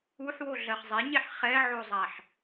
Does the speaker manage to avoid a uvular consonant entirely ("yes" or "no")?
no